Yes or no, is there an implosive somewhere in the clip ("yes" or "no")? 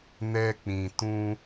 no